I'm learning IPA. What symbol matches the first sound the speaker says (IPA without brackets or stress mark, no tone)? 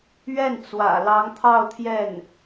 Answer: ɥ